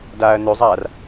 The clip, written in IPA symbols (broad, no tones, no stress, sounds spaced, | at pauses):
d aː ɐ̯ n ø zˤ aː r